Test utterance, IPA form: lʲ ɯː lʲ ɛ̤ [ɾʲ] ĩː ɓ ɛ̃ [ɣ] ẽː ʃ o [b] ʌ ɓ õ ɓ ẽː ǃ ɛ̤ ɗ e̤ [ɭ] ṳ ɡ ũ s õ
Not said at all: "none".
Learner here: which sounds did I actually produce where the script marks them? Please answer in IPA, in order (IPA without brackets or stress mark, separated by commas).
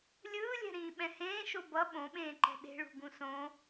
ɾ, h, b, ɭ